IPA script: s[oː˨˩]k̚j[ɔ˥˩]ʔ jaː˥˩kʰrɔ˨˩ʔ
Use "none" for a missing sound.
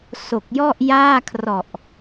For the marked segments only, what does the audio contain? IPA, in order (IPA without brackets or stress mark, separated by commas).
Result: o˨˩, ɔ˥˩